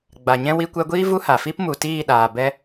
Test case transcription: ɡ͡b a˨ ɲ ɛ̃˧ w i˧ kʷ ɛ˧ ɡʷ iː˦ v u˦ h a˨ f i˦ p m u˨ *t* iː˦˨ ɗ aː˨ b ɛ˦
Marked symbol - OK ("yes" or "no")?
yes